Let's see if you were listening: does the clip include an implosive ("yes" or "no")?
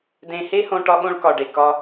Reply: yes